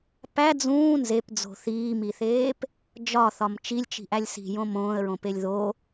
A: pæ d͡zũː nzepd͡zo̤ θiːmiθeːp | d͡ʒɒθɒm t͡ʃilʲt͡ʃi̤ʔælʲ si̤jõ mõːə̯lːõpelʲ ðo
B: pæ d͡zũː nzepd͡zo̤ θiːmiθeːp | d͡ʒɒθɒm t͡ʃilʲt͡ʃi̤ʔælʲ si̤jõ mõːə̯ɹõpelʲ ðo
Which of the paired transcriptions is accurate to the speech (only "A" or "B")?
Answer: B